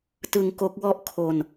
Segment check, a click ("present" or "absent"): absent